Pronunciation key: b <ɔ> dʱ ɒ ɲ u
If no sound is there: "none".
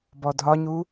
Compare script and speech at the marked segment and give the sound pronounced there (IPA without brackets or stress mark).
ɔ